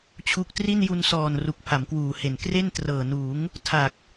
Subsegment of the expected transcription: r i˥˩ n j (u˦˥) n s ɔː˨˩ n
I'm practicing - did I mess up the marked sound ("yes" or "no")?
yes